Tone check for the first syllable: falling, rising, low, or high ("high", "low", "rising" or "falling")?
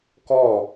falling